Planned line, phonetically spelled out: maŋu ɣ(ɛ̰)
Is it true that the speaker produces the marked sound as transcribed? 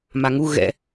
yes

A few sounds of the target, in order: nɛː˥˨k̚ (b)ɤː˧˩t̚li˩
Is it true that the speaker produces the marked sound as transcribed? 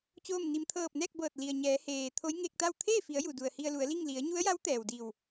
yes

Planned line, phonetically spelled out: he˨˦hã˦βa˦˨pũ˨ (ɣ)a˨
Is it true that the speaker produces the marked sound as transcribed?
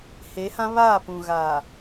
yes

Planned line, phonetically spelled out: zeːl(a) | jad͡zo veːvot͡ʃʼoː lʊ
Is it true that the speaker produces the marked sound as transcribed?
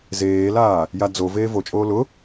no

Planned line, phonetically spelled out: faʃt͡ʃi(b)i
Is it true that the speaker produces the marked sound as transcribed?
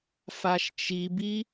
yes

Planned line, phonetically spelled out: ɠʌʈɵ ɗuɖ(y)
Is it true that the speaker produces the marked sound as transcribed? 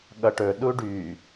yes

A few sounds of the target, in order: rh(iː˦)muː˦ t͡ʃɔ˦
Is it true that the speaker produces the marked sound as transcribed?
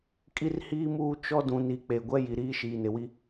yes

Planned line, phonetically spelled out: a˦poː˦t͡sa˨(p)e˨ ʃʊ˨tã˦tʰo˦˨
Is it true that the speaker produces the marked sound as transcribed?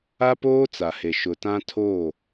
no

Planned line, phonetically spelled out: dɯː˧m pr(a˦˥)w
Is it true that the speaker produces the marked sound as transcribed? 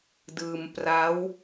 yes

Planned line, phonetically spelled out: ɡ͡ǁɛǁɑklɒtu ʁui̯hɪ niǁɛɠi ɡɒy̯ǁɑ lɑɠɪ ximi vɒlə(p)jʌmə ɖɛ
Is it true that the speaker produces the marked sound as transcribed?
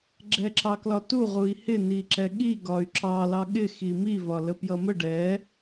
yes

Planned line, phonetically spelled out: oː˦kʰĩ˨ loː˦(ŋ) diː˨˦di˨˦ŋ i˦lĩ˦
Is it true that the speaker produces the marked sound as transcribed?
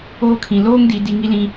yes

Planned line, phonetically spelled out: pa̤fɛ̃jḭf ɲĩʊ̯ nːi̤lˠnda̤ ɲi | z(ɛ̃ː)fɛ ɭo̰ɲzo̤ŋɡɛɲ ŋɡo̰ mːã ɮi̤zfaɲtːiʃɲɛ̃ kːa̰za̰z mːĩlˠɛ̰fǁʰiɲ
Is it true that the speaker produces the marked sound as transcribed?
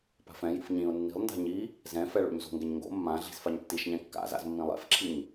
no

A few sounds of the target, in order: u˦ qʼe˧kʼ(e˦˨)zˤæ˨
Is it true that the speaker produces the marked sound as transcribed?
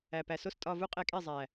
yes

